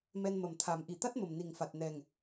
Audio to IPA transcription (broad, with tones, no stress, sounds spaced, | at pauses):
m ɛ˧ n m ə˨˩ m t̪ʰ a˨˩˦ m ʔ i˨˩ t̪ a˦˥ t̚ m ə˨˩ m n i˨˩ ŋ f a˨˩ t̚ n ɛ˨˩ ŋ